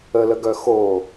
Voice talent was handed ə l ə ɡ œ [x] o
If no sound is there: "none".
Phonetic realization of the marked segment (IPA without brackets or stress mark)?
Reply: x